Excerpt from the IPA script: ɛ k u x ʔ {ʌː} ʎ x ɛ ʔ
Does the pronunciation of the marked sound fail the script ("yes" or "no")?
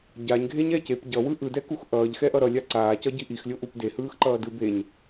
no